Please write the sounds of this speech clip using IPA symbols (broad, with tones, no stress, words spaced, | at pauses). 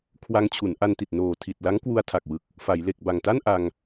kʰwa˧ŋt͡ɕʰu˩˦n ʔa˧nti˨˩t̚ noː˨˩ tʰi˨˩t̚la˦˥ŋ kwu˧a̯tʰa˨˩k̚wɯ˨˩k̚ | fa˩˦j le˨˩k̚ ba˨˩ŋta˥˩n ʔa˧ŋ